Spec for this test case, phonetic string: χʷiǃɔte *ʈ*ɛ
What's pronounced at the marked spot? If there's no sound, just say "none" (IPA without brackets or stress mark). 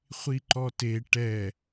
ʈ